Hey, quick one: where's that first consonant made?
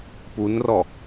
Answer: lips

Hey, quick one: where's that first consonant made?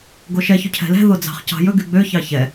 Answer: velum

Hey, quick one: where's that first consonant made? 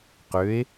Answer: uvula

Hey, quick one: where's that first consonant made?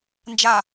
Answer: tongue tip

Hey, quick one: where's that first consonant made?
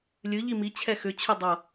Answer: tongue tip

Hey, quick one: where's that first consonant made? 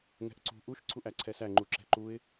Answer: velum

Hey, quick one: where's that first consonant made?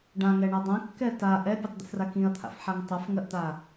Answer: retroflex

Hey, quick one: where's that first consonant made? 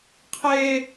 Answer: uvula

